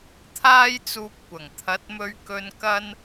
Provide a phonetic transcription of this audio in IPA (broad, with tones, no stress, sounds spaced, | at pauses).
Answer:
t̪ʰ aː˥ j t͡s uː˧ p̚ kʷ ɐ˨˩ ŋ t̪ʰ ɐ˨˥ t̚ m ɵ˧ ɥ k ɵ˧ n k ɐ˥ n